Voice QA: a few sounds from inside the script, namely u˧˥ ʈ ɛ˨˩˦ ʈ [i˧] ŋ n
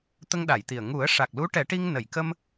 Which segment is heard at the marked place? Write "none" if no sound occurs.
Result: i˧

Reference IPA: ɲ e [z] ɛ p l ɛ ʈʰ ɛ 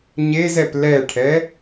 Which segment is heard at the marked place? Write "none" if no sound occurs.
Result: z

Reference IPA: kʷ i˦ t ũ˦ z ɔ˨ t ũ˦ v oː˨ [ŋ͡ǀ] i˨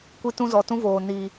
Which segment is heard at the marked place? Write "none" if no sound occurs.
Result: n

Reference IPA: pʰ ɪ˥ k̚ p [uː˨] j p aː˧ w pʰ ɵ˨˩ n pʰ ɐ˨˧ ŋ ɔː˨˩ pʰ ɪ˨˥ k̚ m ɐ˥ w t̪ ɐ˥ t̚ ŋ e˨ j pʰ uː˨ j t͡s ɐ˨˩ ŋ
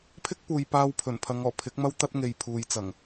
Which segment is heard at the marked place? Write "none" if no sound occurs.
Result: uː˨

